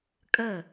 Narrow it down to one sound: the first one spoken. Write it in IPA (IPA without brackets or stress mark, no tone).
kʼ